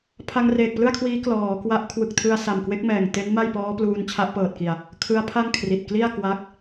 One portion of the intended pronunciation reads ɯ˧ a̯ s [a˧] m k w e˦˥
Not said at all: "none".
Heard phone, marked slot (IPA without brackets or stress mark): a˨˩